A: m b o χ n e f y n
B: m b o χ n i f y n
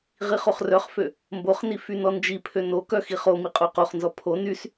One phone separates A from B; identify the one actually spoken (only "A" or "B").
B